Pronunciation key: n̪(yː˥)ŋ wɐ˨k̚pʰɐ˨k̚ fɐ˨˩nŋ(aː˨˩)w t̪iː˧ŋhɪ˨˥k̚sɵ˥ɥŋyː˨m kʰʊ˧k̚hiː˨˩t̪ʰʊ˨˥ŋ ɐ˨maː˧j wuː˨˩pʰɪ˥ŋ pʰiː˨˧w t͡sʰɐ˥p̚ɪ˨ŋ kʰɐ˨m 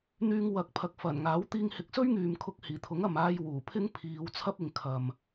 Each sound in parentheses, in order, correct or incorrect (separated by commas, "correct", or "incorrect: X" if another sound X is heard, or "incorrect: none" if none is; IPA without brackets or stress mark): incorrect: yː˧, incorrect: aː˨˥